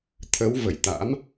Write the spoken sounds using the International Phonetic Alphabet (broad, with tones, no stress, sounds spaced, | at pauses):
t̪ʰ ə˨˦ w v ə˧˩ j t̪ a̰˧˥ m